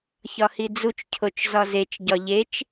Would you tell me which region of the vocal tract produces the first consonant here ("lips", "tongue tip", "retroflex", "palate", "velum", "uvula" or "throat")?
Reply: palate